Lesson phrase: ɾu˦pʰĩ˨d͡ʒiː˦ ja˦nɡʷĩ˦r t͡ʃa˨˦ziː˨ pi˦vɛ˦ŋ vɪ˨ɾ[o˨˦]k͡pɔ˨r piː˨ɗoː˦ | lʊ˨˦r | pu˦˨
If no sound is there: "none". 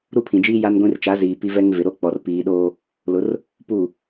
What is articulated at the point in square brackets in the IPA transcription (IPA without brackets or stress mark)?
o˦